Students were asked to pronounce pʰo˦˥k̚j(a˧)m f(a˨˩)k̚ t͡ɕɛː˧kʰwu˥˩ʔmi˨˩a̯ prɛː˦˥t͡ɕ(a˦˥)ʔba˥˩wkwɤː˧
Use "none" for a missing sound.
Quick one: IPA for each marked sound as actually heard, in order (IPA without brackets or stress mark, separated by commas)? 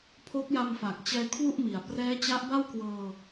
a˧, a˨˩, a˦˥